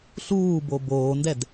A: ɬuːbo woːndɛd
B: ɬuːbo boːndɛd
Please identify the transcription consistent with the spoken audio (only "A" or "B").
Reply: B